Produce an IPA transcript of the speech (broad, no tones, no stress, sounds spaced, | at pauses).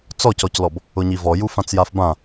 t͡s ɔ c ɔ c l ɔ b | ʊ ɲ i v ɔ j u f ã t͡s j a f b ã